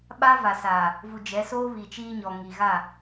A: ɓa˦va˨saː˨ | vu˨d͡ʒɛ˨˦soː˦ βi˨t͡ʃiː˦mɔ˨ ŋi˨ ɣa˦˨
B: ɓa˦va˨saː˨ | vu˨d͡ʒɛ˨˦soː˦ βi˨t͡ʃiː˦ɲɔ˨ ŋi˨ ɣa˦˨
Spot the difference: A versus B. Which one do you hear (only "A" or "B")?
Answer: B